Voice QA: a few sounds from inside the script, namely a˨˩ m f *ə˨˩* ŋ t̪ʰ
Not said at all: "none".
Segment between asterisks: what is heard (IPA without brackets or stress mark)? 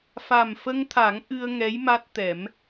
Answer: ə˧